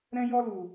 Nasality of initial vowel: nasal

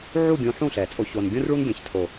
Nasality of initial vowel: oral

